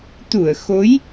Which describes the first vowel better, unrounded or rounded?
rounded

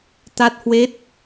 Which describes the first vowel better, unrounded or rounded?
unrounded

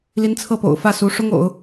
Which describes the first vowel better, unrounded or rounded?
unrounded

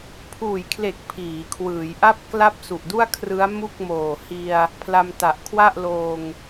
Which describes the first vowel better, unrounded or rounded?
rounded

